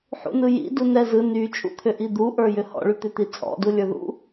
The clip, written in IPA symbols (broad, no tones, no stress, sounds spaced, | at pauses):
ħ ṵ n ɯ j ḭ d u n ɛ z ɯ n y t͡ʃʼ ṵ t̪ʰ ʏ ʔ i d̪ u ʔ ə˞ j ʏ h ɔ̰ ɭ y t̪ ʏ t̪ i t͡sʼ ɔ̰ d u lʲ ə˞ ð ṵ